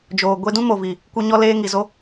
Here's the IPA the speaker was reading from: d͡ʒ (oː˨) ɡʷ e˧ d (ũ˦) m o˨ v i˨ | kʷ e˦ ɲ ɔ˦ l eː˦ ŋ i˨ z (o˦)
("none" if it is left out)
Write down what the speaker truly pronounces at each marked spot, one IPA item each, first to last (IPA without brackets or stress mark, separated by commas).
oː˨, ũ˦, o˦